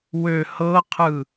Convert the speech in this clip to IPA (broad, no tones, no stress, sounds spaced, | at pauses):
w ø h ɤ qʰ ɯ